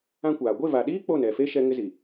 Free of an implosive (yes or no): no